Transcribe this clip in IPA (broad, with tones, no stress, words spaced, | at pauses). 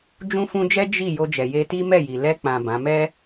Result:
d͡ʒũ˦fũ˦ d͡ʒɛ˦ d͡ʒi˦˨ jo˧d͡ʒɛ˨ je˧ti˦ mɛ˦˨ji˨ lɛ˧ k͡pã˨ bã˨˦ mɛ˦